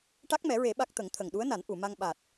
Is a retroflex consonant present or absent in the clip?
present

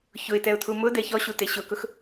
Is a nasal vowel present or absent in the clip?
absent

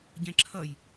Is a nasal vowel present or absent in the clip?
present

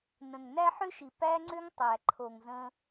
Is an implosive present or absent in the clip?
absent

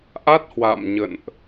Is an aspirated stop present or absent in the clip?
absent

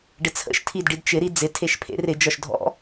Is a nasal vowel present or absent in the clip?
absent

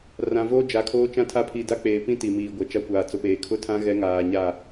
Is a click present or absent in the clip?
absent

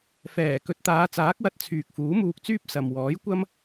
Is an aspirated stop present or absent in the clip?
present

